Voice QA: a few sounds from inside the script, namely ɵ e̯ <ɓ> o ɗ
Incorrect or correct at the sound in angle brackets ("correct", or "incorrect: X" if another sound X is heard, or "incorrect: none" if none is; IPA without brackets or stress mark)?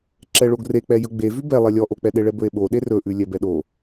correct